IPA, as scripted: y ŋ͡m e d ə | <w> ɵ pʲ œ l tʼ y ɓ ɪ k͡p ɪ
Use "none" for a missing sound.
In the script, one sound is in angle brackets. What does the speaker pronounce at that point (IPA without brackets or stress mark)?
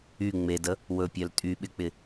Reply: w